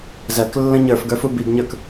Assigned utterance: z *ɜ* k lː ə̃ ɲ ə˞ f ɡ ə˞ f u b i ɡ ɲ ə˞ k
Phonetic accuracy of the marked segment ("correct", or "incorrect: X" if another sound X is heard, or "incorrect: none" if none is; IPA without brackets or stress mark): correct